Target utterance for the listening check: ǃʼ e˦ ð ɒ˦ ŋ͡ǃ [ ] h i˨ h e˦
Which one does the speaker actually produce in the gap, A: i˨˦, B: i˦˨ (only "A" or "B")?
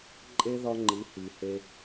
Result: A